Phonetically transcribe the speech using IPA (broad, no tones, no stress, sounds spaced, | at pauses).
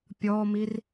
pʲ ɔ m i r